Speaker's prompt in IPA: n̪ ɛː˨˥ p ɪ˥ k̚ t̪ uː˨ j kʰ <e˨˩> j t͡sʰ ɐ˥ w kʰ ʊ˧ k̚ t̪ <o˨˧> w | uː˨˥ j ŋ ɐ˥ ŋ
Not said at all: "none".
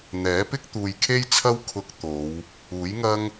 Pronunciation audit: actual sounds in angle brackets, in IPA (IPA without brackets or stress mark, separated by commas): e˥, o˨˧